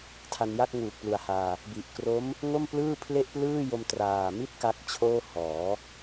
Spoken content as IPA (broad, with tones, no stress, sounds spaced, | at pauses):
tʰ a˧ n j a˥˩ k̚ ŋ uː˨˩ k̚ p l u˨˩ a̯ h aː˧ | b i˨˩ ʔ k r o˦˥ m | ŋ o˥˩ m p l ɯː˥˩ pʰ l e˥˩ ʔ p l ɯː˥˩ j o˧ m t r aː˨˩ m i˥˩ t̚ k a˦˥ k̚ t͡ɕʰ oː˥˩ h ɔː˩˦